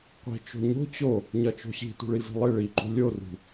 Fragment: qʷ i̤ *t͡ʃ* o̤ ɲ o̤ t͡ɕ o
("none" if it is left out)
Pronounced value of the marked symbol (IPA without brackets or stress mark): t͡ʃ